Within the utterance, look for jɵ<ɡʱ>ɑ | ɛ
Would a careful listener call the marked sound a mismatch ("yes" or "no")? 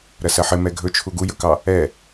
yes